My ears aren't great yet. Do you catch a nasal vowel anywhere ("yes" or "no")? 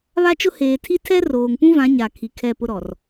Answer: yes